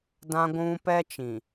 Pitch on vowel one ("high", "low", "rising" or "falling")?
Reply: high